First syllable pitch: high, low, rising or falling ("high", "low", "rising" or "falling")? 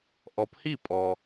rising